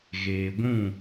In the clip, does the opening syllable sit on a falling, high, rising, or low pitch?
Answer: low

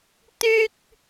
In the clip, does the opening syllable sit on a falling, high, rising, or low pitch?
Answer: high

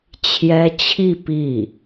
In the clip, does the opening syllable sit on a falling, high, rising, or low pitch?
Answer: high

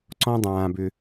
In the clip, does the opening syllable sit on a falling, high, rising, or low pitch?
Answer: low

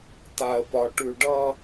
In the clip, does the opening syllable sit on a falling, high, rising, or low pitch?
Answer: low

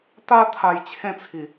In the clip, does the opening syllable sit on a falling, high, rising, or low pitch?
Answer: high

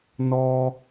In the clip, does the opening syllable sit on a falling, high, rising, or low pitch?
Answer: low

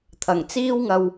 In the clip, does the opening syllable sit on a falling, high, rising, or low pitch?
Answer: low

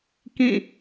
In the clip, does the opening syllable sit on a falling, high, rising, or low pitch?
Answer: falling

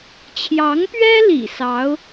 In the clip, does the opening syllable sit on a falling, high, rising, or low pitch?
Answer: rising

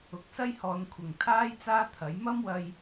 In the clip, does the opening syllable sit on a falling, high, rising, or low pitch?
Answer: low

